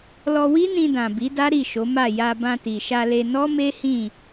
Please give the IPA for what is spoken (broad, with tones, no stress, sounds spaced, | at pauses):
l ɔ˧ w i˦ n ĩ˧ d ã˨ b i˨˦ d a˦ ɾ i˦˨ ʃ o˨˦ m a˦˨ j a˧ b ã˧ t i˨ ʃ a˧ l e˧ n ɔ˦ m e˦ h ĩ˦˨